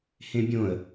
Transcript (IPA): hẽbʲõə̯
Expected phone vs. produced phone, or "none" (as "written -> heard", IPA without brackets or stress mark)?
none